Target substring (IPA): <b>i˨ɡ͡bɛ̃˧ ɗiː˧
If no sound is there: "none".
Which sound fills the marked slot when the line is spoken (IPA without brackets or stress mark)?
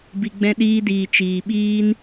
b